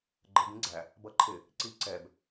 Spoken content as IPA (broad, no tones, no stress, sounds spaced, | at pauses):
ɡ͡ǃ ə b ĩ ɡ͡ǀ æ | b ʌ ǃʰ ɪ | ǀ i ǀ ɛ b